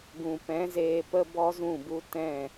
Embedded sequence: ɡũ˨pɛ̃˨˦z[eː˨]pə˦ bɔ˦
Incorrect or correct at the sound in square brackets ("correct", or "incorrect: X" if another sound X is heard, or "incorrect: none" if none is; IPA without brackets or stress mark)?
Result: incorrect: eː˧